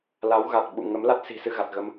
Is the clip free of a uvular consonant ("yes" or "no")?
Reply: yes